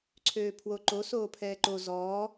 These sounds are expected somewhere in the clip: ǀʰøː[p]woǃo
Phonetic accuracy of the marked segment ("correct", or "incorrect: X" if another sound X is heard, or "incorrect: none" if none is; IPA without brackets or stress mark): incorrect: pʰ